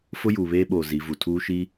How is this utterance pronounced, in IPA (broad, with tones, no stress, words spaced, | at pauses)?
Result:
fʊ˦juː˨βeː˦ɓoː˨ zi˨˦vu˨ tʰuː˦ʃi˦